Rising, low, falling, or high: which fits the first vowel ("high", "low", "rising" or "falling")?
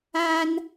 high